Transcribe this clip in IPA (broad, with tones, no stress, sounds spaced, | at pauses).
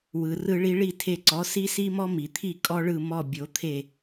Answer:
w ɯ˩ r ɯ˧ ɭ i˧ ɭ i˥˩ tʰ e˧ ǀ ɔ˩˥ s i˥ s i˥ m ɔ˥ m i˩ t̪ʰ i˥˩ kʼ ɔ˥ ɭ ɯ˥˩ m ɔ˥˩ bʲ o˩˥ t̪ʰ e˥˩